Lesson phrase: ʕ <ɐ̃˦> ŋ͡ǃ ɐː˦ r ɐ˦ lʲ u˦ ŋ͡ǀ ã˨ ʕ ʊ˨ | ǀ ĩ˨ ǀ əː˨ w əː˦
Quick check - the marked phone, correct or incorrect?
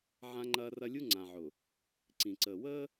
incorrect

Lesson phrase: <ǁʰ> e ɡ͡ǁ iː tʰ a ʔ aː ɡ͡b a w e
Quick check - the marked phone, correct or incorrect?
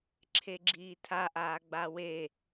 correct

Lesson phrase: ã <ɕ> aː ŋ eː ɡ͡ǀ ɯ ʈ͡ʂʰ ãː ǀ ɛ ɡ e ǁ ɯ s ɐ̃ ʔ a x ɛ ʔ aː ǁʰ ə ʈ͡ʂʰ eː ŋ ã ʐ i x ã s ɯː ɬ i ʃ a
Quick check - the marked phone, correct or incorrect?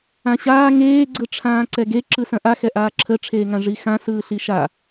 correct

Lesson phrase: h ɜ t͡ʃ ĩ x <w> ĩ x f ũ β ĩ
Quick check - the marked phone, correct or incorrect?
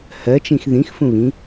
incorrect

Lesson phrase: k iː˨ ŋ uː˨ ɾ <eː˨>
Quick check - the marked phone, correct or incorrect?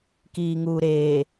correct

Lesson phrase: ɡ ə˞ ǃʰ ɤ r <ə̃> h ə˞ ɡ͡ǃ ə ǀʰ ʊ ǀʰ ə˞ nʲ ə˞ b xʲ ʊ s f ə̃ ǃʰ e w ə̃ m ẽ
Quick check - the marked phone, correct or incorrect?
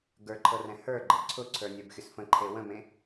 incorrect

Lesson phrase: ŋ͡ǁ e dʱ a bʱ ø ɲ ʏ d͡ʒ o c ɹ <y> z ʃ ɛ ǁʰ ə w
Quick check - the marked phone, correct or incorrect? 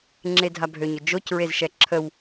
incorrect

